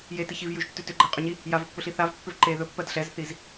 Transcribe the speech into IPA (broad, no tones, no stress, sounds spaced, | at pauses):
j e t i ç i v j ʉ ʒ tː ʉ t ʏ ɡ͡ǃ ɛ qʼ ʏ ɲ i | j a v ɵ pː ɵ ɬ i θ a v pː ʏ v ǃ e ð ɵ pː ɜ d ɬ ɛ z θ i z